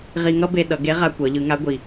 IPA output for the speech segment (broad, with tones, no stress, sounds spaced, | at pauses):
ʁ i˧ ŋ ʌ˥ b e˧ ɗ ʌ˩˧ ɡ e˧˥ ʁ a˧ kʷ ʌ˩˧ ʎ ɯ˩˧ ŋ a˧˥ ɡʷ i˩